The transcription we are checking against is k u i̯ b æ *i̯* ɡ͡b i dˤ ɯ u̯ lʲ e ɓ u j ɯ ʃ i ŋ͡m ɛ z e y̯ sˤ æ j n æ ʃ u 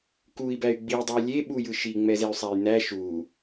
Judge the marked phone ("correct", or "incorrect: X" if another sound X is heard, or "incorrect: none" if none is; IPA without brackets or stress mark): incorrect: y̯